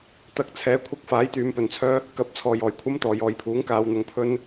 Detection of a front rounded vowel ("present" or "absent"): present